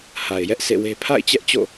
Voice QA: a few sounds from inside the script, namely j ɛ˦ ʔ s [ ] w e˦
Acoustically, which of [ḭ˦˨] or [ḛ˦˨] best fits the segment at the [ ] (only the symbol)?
ḛ˦˨